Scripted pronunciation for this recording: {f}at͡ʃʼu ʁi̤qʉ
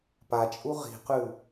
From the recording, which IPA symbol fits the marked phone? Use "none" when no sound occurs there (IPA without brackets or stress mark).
p